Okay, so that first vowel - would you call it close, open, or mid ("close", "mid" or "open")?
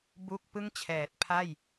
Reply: close